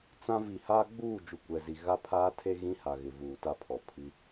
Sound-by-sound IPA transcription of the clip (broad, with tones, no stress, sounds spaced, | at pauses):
t͡s ã˦ v i˨ h aː˦ ɡ͡b uː˦˨ d͡ʒ u˨ kʷ ɛ˨ z i˨ ɣ a˦ pʰ aː˦ tʰ e˦ ɣ ĩ˦ h a˨ ɣ ɪ˨ v uː˨ t a˦ pʰ ɔ˨ pʰ i˦